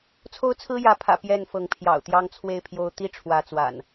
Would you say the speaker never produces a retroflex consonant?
no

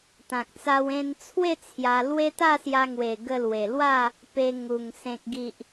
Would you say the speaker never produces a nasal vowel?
no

